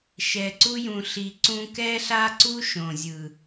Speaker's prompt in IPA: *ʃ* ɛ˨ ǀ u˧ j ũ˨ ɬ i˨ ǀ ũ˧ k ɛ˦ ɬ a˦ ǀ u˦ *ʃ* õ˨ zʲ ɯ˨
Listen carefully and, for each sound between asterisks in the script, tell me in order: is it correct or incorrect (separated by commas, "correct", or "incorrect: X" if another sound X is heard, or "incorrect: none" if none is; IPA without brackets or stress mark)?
correct, correct